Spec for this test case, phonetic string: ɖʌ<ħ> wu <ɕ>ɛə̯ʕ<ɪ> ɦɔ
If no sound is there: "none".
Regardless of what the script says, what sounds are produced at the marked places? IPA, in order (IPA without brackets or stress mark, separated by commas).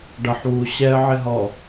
ħ, ɕ, ɪ